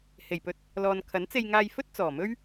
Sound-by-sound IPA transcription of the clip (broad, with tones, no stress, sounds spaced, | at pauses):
h e˨˩ j p ɵ˧ t̚ | l ɔː˨ n kʰ ɐ˨˥ n t͡s e˧ j ŋ aː˧ j f ɵ˥ t̚ t͡s ɔː˨˩ m ɵ˥ ɥ